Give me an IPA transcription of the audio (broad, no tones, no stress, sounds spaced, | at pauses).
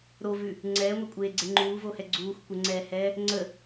ɾ o v ʉ | ŋ͡ǀ ɛː ŋʷ e kʷʼ eː ɡ͡ǀ e ŋ͡ǃ uː v o h ɛ ɡ͡ǀ uː xʷ kʷ ə ŋ͡ǀ ɛː h ɛː | ŋ͡ǀ ə